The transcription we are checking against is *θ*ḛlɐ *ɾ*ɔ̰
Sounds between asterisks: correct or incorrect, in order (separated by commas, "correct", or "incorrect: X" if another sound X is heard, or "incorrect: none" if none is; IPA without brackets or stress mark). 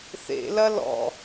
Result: correct, incorrect: l